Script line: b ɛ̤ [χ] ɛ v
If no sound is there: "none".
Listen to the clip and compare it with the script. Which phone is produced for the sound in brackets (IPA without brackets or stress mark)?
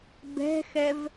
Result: x